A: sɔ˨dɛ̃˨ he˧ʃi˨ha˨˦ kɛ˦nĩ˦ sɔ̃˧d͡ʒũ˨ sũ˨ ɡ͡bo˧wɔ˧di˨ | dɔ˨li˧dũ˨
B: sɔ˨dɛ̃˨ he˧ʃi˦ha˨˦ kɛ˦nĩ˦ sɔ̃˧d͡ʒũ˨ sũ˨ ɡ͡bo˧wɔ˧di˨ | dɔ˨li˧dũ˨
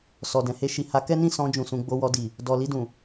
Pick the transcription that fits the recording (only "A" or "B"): A